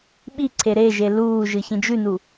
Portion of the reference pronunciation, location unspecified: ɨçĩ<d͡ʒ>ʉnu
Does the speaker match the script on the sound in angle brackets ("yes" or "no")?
yes